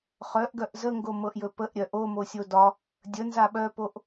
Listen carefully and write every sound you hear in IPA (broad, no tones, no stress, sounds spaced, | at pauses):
χ œ ʔ ɡ œ ʔ z ə ŋ ɡ o m ɤ ʔ j ɵ p ə ʔ ɾʲ œ ʔ o m o sʲ o d ɒ | dʲ ə n z a ɓ œ p o ʔ